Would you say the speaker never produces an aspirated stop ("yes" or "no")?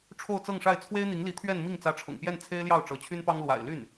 no